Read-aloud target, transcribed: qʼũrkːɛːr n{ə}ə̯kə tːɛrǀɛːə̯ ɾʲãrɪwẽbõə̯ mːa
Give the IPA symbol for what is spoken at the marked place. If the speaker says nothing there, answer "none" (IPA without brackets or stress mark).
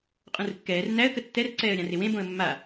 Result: æ